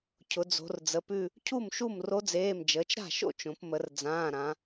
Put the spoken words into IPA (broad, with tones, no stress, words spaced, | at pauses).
cʰʊ˩˧d͡zo̤˩˧rd͡zə˩˧˩pʉ˥˧ | cʰu˥˩mʃu˥˩mro˧˥d͡zeː˩˧˩m d͡ʒəː˩˧t͡ʃɾa̤˥˩ʃo̰˥˧ t͡ʃõ˩˧pmə˩˧r d͡zãː˩˧˩ɾã˩˧